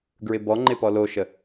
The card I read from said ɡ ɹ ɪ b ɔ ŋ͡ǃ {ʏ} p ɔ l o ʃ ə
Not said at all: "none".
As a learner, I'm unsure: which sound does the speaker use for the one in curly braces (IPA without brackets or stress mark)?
ɪ